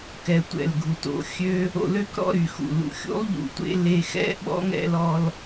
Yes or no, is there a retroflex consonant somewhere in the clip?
no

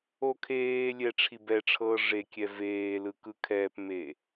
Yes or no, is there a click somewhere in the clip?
no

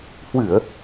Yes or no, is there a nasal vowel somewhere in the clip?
no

